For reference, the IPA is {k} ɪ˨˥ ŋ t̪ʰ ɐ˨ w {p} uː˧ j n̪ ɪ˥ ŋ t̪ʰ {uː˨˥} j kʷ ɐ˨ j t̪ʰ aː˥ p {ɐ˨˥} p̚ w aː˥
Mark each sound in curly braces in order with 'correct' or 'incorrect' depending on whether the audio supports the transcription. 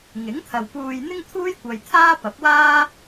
incorrect: ŋ, correct, incorrect: uː˥, correct

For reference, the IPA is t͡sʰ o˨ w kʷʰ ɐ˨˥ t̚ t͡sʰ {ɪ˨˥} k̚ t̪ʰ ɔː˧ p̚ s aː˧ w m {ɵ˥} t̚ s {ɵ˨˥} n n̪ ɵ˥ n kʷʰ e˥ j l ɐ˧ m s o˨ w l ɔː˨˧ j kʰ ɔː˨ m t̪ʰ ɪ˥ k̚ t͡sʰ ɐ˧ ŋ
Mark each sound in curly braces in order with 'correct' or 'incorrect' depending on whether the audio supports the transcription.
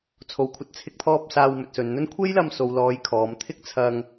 correct, incorrect: ɵ˨, incorrect: ɵ˨

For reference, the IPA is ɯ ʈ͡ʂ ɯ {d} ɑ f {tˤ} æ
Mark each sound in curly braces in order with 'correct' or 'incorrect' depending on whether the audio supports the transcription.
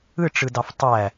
correct, correct

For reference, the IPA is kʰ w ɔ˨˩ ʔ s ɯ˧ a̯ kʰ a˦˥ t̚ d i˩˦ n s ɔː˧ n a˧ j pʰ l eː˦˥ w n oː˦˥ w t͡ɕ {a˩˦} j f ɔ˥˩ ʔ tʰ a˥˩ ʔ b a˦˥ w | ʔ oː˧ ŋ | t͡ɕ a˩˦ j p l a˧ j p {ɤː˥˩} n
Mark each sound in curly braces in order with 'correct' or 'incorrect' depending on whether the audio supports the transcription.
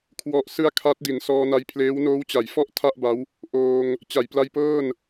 correct, correct

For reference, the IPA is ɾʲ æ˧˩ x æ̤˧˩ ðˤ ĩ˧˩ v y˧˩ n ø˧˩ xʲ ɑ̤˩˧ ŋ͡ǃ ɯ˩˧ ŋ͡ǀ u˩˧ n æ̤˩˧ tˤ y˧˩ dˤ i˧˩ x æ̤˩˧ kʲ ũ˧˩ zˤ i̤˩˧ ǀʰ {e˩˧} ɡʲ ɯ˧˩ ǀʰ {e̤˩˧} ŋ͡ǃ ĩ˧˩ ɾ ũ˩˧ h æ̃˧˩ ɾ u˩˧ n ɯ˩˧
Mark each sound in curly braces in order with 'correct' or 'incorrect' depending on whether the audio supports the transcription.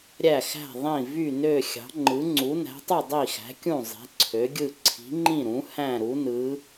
incorrect: ø˩˧, incorrect: i̤˩˧

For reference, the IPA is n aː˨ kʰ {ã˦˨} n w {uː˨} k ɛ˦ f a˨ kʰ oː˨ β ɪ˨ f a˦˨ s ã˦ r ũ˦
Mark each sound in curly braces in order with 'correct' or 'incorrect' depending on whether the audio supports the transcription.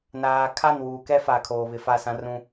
incorrect: a˦˨, correct

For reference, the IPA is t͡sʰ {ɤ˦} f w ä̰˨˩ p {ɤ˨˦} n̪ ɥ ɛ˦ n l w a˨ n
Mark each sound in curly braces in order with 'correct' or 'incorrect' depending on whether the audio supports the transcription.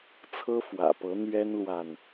correct, correct

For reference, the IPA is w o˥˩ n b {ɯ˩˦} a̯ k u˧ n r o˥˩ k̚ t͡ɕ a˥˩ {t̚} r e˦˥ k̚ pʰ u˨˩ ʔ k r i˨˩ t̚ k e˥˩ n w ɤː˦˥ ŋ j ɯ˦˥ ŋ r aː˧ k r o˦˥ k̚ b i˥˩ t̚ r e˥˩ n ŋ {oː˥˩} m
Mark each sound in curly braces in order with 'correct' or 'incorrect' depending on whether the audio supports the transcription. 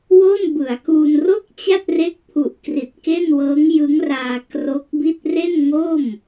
correct, correct, correct

